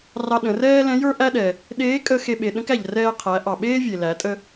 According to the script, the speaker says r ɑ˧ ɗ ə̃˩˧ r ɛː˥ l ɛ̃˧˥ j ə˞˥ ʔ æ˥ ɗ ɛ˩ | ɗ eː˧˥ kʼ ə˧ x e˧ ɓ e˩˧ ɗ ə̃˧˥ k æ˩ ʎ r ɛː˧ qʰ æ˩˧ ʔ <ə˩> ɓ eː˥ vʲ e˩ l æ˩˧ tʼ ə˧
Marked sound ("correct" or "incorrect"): incorrect